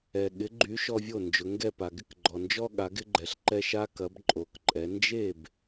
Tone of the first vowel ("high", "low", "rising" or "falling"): low